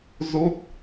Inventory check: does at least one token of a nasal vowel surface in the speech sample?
no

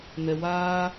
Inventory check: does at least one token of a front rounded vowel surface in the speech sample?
no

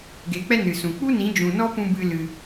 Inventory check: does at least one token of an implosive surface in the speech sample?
no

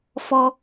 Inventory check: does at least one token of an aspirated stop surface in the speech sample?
no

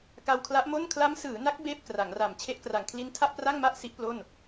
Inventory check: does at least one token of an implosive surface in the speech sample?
no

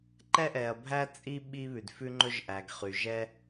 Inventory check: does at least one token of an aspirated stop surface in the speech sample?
no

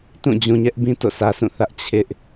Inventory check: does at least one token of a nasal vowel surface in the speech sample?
yes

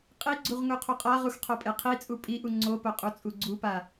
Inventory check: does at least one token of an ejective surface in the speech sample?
yes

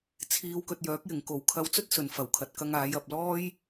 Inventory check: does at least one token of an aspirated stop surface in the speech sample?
yes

